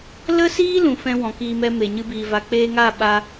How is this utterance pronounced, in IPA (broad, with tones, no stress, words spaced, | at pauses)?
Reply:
lə˦siː˦ lũ˨fɛ̃˧ wɔ̃˨kiː˧mɛ˧ me˨ɲɨ˧biː˨ va˨k͡peː˧ŋaː˦˨ ɓa˧